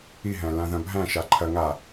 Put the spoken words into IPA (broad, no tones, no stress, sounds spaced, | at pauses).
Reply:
i ɦ æ̃ l ã ð ɐ̃ bʱ æ̃ ʃ a ǃʰ ɐ ŋ a